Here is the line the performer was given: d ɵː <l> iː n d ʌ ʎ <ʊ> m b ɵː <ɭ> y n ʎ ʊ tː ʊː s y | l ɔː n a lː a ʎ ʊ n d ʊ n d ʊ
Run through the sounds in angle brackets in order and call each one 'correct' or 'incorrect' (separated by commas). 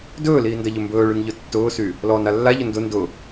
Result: correct, incorrect, correct